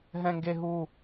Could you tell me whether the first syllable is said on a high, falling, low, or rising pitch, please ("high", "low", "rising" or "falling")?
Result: high